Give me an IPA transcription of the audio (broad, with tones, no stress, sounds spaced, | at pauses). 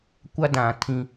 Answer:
kʷ a˦ d ã˨ tʰ ĩ˦